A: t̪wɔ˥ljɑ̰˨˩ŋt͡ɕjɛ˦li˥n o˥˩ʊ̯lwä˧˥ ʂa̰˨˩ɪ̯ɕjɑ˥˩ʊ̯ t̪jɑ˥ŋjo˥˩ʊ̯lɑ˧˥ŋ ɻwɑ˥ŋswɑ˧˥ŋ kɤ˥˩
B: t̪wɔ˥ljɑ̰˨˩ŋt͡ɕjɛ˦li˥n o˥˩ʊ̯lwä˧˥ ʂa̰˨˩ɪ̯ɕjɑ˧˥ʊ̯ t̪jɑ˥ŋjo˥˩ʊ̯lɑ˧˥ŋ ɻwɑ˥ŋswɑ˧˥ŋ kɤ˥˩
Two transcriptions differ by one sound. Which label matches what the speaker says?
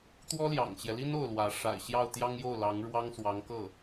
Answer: A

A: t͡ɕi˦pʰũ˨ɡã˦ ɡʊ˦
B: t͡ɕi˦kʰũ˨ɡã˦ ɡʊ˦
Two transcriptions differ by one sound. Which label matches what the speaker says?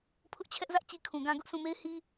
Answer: B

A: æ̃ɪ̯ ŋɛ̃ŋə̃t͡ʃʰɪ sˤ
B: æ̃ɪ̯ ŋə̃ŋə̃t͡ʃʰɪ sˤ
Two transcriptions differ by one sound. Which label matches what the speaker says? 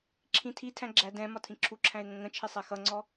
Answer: B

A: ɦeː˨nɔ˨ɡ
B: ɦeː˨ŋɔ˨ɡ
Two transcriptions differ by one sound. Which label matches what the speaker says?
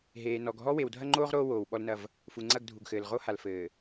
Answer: A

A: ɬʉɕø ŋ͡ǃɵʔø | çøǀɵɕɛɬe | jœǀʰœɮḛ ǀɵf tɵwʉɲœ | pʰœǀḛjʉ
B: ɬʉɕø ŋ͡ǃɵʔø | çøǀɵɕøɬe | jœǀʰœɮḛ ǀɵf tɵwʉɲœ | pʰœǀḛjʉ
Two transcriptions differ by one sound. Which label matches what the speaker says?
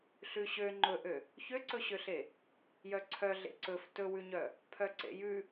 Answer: B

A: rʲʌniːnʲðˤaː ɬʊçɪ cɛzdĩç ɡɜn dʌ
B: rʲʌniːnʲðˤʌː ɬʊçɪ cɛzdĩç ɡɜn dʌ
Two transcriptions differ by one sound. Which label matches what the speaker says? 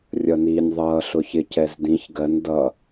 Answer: B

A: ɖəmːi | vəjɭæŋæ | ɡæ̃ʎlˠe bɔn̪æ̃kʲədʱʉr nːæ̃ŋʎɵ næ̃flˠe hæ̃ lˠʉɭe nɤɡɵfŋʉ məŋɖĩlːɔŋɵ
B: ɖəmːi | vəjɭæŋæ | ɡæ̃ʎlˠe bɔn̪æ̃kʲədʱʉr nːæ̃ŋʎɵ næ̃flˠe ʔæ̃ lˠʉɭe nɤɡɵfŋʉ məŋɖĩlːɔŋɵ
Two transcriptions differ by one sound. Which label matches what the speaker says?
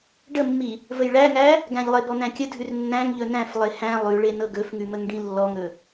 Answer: A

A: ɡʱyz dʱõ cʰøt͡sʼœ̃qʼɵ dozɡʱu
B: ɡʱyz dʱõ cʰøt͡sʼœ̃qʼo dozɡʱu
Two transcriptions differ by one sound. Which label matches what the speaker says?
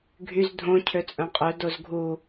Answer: A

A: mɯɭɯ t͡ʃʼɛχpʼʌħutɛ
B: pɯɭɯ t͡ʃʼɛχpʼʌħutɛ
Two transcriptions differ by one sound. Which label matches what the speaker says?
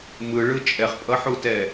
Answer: A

